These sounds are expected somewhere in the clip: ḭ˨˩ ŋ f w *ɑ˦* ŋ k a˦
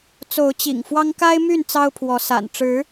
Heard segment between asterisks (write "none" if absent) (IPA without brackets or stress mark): ɑ˦